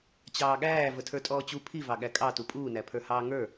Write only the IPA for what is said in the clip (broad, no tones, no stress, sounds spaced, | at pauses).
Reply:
t͡ɕ ɑː ɠ æː v ə tʰ ə˞ tʼ ɔː t͡ɕ u pʰ i v ɑ ɠ æ kʼ ɑ t u pʼ uː n æ pʰ ə˞ h ɑː ŋ ə˞